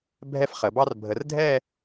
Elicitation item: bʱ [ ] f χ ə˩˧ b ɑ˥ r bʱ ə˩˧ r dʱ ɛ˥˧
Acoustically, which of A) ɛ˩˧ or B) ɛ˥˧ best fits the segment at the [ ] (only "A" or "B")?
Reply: B